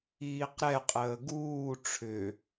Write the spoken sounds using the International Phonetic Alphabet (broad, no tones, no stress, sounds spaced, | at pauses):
iː q ɾ ɛ qʼ əː ɡ uː ʈ͡ʂʰ ʏ